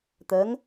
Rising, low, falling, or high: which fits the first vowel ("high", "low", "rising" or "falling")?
rising